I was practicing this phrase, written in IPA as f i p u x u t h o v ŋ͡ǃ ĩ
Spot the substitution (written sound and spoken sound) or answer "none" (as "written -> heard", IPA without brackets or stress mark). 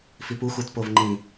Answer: h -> p